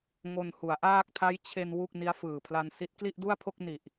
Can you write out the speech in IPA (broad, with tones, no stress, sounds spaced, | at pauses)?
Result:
ŋ o˧ n h u˩˦ a̯ ʔ aː˥˩ k̚ tʰ a˦˥ j t͡ɕʰ e˧ n w u˥˩ k̚ n i˦˥ a̯ f ɯː˨˩ pʰ l a˧ n s i˦˥ t̚ k l i˥˩ ʔ d u˥˩ a̯ pʰ o˥˩ k̚ n i˨˩ ʔ